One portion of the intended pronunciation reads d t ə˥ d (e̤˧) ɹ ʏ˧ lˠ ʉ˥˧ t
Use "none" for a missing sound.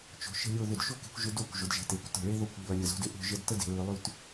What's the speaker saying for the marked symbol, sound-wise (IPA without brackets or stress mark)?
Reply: e̤˩˧